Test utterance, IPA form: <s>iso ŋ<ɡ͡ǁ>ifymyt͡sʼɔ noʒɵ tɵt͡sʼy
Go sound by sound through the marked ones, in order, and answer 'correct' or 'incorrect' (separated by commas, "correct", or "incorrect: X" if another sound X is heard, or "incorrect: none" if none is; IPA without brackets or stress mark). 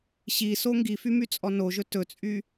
incorrect: ɕ, incorrect: ɡ